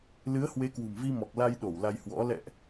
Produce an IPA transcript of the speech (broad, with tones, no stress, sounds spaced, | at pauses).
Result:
l ɨ˨˦ ə̯ h w e˨˦ k w ṳ˨˩ m v i˧ m ɔ˨˩ k̚ l a˧ j ɗ o˧˩ w l a˧ j h w ɔ̰˧˥ l ɛ̰˧˨ ʔ